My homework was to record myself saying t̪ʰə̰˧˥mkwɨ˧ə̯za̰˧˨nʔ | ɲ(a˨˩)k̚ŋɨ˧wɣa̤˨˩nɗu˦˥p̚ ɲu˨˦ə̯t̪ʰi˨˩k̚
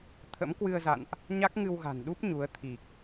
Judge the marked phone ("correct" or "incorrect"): incorrect